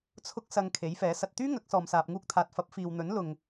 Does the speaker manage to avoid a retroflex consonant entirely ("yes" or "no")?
yes